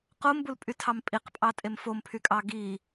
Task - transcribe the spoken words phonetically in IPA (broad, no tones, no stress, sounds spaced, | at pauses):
q o m b u l pʼ y tʰ ɑ m pʼ i q pʼ ɑ tʼ e m f o m pʰ y kʼ ɑ ɡ i